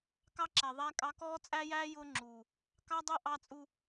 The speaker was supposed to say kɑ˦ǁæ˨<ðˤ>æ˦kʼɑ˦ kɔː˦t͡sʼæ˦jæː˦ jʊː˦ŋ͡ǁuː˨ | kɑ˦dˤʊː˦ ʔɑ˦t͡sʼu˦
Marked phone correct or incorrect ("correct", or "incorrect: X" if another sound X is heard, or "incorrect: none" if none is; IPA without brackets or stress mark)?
correct